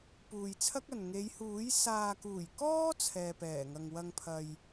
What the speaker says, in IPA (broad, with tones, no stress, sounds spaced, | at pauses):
p uː˨ j t͡sʰ ɐ˥ k̚ ɐ˨ n ŋ e˨˧ j h uː˨˥ j s aː˨ k uː˨˩ j k ɔː˥ t͡sʰ ɛː˨ p ɛː˨˩ ŋ ɐ˨ ŋ w ɐ˧ ŋ pʰ ɐ˨ j